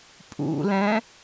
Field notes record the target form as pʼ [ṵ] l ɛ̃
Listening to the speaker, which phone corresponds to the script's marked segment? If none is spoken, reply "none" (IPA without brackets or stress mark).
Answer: ṵ